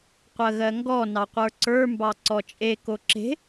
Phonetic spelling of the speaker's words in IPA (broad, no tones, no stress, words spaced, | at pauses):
qʷɜɣɜŋɡɔ nɑqʷə˞ǀə˞ mbɑǀɔt͡ʃʼe koǁe̤